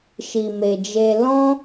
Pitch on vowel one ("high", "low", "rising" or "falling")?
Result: low